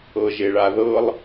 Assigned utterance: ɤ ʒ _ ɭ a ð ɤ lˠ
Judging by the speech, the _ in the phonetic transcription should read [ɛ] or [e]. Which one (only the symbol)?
e